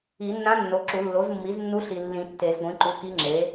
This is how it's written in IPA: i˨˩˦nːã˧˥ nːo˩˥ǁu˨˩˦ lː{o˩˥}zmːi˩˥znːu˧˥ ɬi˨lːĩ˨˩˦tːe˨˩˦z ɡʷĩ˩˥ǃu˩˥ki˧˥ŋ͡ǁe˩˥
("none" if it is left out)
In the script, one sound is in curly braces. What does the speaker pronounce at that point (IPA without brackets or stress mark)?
o˩˥